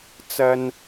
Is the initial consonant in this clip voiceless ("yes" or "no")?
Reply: yes